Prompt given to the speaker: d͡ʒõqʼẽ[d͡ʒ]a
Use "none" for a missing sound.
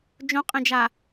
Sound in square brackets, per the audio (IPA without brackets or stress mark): d͡ʒ